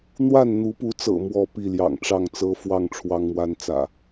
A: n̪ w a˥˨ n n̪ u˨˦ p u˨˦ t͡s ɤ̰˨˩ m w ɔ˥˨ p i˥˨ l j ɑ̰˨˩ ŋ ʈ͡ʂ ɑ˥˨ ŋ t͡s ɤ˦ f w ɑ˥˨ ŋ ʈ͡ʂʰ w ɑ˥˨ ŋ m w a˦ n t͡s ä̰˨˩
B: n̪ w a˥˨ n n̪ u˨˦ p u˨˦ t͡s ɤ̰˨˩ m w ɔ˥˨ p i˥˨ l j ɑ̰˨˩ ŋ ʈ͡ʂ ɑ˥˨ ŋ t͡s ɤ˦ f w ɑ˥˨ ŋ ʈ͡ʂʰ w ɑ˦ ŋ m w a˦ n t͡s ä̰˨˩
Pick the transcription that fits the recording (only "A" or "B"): B